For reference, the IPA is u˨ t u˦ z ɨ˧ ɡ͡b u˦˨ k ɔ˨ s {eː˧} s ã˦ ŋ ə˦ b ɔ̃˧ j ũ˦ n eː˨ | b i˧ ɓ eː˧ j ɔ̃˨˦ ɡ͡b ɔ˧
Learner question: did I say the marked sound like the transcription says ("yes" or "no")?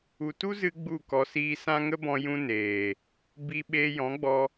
no